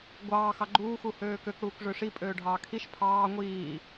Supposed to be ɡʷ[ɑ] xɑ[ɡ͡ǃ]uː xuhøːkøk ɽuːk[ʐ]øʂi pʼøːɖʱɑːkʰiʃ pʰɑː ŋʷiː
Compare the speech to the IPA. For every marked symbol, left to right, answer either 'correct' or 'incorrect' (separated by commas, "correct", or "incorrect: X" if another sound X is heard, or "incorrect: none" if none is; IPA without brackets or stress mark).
incorrect: ɑː, correct, correct